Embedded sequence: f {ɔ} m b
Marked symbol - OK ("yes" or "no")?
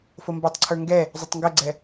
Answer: no